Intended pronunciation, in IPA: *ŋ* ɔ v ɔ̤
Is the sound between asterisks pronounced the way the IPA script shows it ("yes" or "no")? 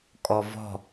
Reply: no